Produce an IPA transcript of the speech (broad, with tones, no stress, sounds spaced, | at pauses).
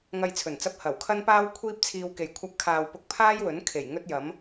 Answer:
ŋ ɐ˧ j t͡sʰ ɵ˨˩ n t͡s ɐ˧ p̚ h ɐ˨˩ w kʰ ɐ˥ n p aː˥ w kʷʰ iː˥ p̚ t͡sʰ iː˧ w k e˨ j kʷʰ ɐ˧ p̚ kʰ aː˨ w p ʊ˧ k̚ pʰ aː˥ j w ɵ˨˥ n kʰ e˨˩ j ŋ ɵ˥ t̚ j ɐ˨˥ m